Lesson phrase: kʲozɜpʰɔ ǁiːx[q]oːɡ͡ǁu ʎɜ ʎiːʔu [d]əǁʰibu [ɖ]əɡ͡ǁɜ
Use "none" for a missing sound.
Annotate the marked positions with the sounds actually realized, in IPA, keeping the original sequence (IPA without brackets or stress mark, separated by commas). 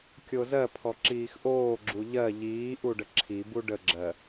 ʔ, ɖ, ɖ